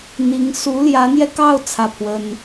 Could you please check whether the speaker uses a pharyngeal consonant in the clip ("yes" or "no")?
no